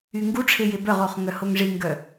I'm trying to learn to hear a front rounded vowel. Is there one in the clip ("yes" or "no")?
yes